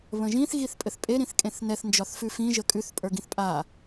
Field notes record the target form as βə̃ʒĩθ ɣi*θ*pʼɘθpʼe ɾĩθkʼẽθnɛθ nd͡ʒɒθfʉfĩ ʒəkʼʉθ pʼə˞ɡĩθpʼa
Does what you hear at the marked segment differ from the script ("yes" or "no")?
no